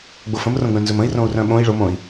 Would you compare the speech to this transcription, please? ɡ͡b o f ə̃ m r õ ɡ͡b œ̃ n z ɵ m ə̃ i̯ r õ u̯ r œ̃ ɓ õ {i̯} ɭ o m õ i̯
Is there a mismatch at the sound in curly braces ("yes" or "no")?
no